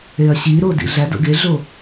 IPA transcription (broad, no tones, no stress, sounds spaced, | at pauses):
e ɐ̯ ɕ i ɾ o d ḭ ɮ æ d o̰ ɡ e ɮ o